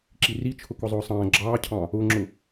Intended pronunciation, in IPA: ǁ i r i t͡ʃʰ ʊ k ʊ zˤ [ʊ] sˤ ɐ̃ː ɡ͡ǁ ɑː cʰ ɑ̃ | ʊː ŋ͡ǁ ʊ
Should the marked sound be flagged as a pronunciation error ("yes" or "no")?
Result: yes